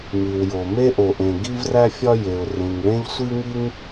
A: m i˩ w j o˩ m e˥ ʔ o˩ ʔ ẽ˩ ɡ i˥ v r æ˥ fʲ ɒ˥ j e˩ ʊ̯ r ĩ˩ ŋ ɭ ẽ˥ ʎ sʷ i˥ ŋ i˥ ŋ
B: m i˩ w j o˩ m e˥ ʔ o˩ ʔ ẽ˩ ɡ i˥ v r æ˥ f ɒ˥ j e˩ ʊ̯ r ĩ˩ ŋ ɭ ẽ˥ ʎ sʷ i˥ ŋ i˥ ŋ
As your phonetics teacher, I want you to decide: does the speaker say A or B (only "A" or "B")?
A